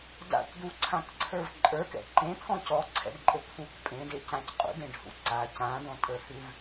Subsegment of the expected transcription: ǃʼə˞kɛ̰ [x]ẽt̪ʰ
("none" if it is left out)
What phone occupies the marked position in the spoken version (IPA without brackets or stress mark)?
ǃ